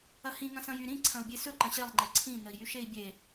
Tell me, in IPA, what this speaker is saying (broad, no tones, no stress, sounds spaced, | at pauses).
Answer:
ɐ h ĩ ŋ ɐ̃ s ɐ̃ j y ɾ ĩ ǀʰ ɐ̃ u̯ bʲ e s ɵ ǃ ɐ̃ ɕ e lˠ ŋ͡ǃ e ǀʰ ĩ n ə i̯ j y ʃ e i̯ bʲ e